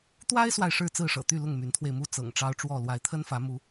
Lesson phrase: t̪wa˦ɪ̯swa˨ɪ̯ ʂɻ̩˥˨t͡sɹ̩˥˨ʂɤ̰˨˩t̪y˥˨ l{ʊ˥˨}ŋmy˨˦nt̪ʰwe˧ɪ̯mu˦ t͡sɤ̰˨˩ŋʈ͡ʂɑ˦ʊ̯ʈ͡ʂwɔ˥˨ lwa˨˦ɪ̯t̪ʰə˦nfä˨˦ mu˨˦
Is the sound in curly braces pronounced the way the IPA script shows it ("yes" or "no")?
yes